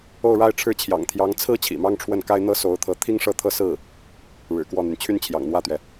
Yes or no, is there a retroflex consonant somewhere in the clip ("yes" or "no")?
yes